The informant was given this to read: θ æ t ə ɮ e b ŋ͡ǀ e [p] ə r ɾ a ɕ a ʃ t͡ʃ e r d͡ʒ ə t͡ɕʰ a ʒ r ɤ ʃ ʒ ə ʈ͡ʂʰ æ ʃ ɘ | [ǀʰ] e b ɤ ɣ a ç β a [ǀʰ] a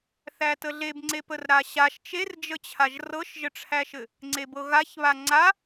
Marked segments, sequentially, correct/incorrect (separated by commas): correct, incorrect, incorrect